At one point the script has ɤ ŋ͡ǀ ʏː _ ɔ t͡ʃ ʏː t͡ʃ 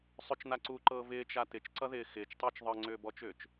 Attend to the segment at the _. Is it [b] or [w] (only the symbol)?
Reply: b